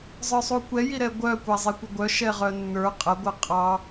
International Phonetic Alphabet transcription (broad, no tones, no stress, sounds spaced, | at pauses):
zˤ ə˞ sˤ u kʷ ɛ j i ɾ ɛ ɡʷ œ kʷ æ zˤ e kʷ ə ɡʷ œ ʃ ɛ ʁ œ nː ə˞ qʼ ə ɡʷ ə qʼ ɑ